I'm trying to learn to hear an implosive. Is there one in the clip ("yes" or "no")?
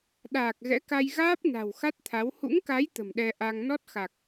yes